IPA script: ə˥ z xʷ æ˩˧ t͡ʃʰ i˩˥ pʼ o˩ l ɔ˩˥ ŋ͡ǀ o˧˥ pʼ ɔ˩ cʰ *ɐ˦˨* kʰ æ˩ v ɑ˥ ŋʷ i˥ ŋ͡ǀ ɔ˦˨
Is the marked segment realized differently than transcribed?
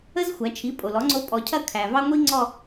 no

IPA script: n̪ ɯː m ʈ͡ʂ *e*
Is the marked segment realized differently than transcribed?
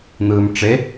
no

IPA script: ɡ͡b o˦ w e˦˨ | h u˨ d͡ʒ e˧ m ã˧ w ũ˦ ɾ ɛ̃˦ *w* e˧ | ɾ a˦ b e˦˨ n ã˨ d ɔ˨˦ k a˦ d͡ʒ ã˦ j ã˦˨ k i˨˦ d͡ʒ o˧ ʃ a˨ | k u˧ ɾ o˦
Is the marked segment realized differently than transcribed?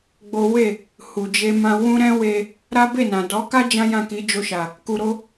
no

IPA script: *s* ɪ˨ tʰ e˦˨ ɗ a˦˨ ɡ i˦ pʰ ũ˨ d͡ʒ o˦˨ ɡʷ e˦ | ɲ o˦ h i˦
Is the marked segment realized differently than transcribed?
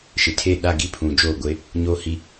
yes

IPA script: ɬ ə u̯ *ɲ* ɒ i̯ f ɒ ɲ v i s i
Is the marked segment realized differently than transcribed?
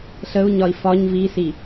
no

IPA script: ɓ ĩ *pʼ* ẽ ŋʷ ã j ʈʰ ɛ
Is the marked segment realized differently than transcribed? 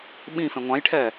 yes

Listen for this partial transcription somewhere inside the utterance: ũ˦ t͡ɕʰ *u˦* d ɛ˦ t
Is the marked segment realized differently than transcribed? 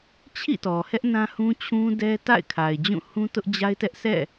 yes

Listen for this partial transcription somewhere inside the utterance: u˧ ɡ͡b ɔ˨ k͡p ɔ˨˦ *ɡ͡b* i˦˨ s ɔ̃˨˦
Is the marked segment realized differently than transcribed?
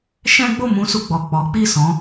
yes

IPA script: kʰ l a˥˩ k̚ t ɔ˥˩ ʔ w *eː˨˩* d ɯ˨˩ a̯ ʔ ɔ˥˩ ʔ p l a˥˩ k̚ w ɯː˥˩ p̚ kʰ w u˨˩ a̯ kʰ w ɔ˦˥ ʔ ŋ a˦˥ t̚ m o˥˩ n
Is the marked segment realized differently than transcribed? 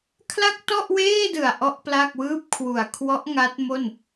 yes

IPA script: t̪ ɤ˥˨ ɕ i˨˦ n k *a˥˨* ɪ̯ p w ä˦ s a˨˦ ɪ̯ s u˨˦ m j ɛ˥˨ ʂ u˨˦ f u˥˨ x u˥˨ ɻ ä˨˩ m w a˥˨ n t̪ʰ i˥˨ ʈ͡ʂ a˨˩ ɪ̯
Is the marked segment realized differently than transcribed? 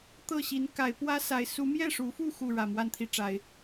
yes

